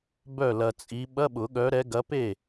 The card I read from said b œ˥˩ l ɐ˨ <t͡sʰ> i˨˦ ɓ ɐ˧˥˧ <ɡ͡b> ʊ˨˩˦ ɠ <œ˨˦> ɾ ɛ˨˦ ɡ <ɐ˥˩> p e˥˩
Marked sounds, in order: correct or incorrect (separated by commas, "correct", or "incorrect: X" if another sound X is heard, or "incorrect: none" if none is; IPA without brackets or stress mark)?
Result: incorrect: t͡sʼ, incorrect: ɓ, correct, incorrect: ɐ˨˦